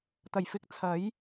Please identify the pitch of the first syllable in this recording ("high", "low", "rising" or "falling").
low